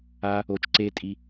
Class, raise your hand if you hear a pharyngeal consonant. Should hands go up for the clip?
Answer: no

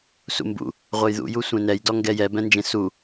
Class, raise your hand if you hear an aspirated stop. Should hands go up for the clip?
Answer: no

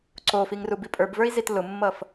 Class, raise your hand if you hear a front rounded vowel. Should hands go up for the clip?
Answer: no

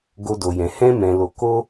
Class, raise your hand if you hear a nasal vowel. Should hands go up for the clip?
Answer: yes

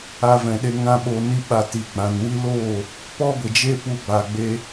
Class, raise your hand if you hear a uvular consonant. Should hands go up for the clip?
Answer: no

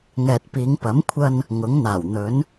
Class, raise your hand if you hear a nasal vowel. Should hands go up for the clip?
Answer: no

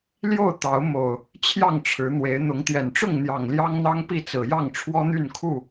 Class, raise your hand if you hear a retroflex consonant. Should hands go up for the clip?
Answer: yes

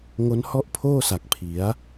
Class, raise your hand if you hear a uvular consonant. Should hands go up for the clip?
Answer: no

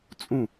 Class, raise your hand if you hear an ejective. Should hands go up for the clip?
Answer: yes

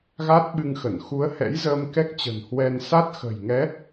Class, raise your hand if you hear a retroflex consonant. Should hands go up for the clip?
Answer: no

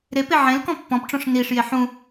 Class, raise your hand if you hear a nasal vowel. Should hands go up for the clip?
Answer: yes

